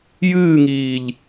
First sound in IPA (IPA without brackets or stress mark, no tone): j